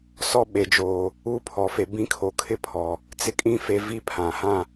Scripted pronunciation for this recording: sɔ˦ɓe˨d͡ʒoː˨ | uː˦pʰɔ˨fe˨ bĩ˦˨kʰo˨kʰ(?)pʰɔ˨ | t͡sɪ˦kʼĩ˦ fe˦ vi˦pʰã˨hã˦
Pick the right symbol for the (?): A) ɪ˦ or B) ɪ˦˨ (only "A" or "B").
A